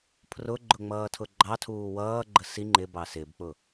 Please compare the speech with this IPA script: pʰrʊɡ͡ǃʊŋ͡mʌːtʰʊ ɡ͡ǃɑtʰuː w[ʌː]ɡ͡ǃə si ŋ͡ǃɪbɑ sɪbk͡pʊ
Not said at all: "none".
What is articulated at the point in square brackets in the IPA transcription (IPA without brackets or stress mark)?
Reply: ʌː